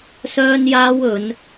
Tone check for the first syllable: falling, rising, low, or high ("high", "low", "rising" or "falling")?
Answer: high